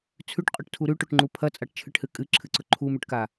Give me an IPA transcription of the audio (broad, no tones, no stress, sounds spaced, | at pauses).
t͡sʰ ʉ ʈ qʼ ɵ ʈ tʰ u ɾ ʉ ʈ o ʈ ŋ͡ǃ u pʰ ɐ t͡sʼ a ʈ t͡ʃʰ ɨ ʈ h ɨ kʼ ɨ ǁʰ ɨ ǀ ɵ ǃʰ u m ʉ ʈ k a